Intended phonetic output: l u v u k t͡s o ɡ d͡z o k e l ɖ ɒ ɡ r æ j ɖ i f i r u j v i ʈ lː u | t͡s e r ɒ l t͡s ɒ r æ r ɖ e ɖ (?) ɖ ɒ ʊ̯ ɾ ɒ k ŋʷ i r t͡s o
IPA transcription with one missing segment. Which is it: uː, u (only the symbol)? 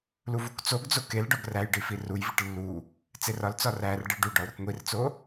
u